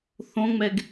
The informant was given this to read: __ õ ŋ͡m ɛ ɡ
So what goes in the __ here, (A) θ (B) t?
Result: A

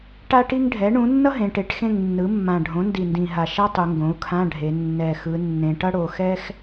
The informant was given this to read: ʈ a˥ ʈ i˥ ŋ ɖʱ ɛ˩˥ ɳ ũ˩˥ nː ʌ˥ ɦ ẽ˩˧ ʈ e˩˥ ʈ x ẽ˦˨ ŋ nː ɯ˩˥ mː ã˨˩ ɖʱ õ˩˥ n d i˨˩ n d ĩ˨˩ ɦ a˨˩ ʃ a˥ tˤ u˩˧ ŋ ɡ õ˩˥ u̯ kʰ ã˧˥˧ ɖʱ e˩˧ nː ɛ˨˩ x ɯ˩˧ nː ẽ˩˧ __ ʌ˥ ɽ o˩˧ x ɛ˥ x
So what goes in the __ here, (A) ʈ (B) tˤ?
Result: A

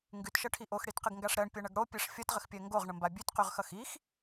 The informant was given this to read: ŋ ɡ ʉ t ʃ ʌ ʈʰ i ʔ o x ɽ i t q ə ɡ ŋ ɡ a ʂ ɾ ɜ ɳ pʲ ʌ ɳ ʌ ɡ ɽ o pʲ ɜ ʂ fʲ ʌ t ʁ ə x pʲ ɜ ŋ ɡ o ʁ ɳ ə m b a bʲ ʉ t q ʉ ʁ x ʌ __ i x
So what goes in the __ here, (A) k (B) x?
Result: B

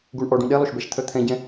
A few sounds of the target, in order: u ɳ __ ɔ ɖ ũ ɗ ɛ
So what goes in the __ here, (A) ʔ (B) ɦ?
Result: A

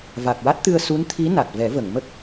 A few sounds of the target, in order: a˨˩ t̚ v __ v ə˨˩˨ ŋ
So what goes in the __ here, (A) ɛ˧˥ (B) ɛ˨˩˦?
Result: B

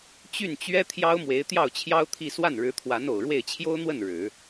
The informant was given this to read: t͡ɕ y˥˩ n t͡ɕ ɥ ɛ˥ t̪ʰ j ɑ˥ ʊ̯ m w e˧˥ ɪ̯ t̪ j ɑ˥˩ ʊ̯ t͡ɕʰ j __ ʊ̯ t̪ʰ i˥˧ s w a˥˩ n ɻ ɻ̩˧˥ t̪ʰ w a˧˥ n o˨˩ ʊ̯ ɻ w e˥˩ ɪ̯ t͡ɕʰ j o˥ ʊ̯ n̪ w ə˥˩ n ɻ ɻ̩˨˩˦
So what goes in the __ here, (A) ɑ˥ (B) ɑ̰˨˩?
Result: A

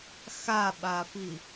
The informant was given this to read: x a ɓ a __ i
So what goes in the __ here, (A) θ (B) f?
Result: B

